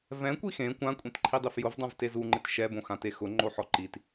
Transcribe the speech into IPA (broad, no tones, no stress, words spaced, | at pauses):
vɛ̃kʷi xẽ kʷãkʷʼẽtǃʰidˤif jʊvdˤãvte zuŋ͡ǃɪt ʃɛbõxãte xʊŋ͡ǃoħɔ ǃit